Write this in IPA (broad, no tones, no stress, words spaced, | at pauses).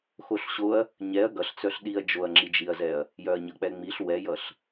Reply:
xoɬɕoɐ̯ | ɲɛɐ̯ ɡʌɬt͡sœɬ ɗiɐ̯ d͡ʒoɐ̯ŋ͡ǁid͡ʒiɐ̯zɛɐ̯ | jœɐ̯ɲʌk͡pɛŋ͡miɬ wɛjʌɬ